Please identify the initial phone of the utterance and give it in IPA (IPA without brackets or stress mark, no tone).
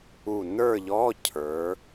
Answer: u